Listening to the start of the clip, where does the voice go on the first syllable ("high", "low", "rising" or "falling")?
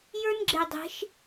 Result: high